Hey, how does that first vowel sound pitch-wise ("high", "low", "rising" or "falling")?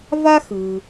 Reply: high